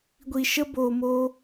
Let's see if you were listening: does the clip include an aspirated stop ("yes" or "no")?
no